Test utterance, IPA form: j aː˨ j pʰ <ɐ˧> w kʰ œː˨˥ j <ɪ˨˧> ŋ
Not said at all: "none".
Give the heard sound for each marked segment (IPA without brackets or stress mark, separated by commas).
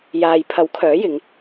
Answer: ɐ˨˥, ɪ˨˧